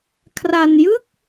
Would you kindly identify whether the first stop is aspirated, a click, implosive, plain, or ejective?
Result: aspirated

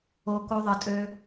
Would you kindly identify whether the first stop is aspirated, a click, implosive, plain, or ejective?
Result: plain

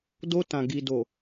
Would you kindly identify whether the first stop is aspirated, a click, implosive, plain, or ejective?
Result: plain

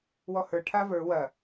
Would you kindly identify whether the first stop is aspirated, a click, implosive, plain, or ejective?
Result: aspirated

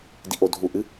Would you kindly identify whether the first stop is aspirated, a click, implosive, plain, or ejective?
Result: plain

